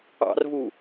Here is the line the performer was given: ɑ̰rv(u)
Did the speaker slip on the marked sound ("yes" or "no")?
no